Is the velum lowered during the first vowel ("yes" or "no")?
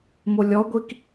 no